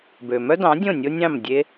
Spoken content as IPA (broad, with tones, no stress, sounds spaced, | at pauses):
b ø˩ m œ˥ d ɑ̃˩˥ dʲ õ˥˩ nʲ o˥ nʲ ɑ̃˥˩ m dʲ e˥